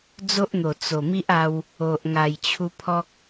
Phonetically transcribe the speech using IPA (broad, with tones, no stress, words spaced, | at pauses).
d͡zo˦ʔn̪o˨˩ t͡so˨˩ mi˦ʔa˧w | o˨ʔ ŋa˨˩jt͡ɕʰu˧pʰɔ˦k̚